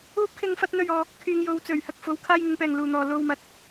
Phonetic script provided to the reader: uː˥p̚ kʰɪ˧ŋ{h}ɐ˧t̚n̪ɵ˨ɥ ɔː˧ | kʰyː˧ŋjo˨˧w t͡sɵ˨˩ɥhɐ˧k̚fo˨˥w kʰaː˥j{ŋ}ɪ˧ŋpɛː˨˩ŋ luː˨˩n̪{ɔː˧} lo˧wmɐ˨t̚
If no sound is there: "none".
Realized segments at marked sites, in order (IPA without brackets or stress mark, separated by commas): f, ŋ, ɔː˨